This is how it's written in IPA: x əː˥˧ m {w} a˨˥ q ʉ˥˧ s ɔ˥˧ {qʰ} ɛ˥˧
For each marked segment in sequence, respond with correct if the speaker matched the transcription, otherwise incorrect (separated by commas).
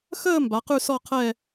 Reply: incorrect, correct